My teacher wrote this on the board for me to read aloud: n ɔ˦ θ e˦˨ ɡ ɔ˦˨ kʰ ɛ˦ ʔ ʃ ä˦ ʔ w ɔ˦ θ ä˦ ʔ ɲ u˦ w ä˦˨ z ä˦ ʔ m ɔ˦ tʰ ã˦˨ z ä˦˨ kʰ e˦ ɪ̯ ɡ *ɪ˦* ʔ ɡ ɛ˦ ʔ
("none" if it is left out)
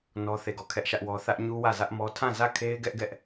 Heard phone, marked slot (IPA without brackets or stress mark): ɛ˦